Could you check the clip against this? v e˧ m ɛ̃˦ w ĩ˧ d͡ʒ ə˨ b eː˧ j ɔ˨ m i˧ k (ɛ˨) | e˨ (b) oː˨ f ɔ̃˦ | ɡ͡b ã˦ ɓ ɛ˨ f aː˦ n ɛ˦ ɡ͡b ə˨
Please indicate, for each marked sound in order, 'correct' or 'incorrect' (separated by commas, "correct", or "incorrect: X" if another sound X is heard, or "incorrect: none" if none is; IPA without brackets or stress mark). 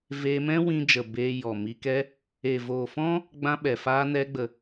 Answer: incorrect: ɛ˦, incorrect: v